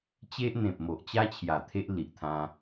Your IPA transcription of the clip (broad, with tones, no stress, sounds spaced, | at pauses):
t͡ɕ e˦ ʔ n̪ ẽ˨ p̚ m o˨ ʔ t͡ɕ a˦ t͡ɕʰ j a˨˩ t̪ʰ e˦ ʔ l i˨ ʔ t̪ʰ ã˧